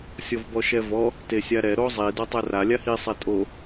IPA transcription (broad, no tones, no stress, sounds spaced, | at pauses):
sʲ ɔ v b ɔ ʃ ɛ v ɔ | t e sʲ a ɾ ɛ ɾ o zˤ i d ɔ tˤ ɛ r a lʲ a h i sˤ ɛ tʼ o